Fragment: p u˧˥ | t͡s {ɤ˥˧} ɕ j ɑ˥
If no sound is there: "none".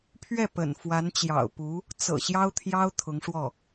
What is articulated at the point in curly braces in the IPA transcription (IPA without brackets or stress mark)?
ɤ̰˨˩